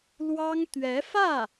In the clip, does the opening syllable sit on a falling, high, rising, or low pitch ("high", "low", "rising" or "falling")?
high